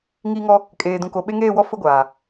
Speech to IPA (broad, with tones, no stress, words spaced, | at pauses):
ŋiː˦ŋɔ˦ | kʼeː˨dũ˨ko˨ɓe˦ ŋeː˦˨wɔ˦ fʊ˦ɡʷaː˨